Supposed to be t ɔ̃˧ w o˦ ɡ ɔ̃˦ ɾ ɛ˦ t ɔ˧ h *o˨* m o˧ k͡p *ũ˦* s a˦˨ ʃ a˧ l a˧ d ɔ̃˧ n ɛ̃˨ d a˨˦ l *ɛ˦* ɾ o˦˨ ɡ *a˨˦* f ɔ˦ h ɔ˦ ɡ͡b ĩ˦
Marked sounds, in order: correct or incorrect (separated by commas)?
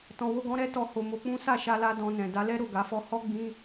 incorrect, correct, correct, correct